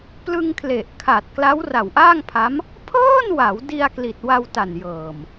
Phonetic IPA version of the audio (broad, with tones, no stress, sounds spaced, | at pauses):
p l ɯ˧ ŋ kʰ l e˨˩ ʔ kʰ a˨˩ t̚ k l a˦˥ w r a˨˩ w ʔ aː˥˩ ŋ pʰ a˦˥ m | pʰ ɤː˥˩ n w a˩˦ w d i˧ a̯ k l i˨˩ t̚ w a˧ w t a˨˩ n j ɤː˨˩ m